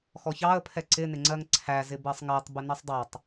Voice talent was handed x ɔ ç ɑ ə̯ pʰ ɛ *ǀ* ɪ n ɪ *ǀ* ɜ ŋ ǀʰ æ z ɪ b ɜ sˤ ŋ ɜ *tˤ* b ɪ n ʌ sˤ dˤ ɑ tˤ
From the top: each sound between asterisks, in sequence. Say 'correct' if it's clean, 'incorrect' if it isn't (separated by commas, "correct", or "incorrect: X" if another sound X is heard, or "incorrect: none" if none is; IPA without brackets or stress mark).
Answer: correct, incorrect: ŋ͡ǀ, correct